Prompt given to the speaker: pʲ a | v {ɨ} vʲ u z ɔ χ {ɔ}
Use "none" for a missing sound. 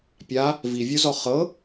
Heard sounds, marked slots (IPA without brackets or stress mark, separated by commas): i, ɤ